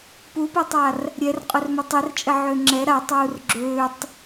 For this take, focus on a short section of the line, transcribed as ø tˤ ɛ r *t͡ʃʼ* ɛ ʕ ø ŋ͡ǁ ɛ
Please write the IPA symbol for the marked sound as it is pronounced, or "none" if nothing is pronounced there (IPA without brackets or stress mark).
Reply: t͡ʃʼ